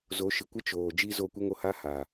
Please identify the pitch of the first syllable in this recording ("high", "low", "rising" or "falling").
rising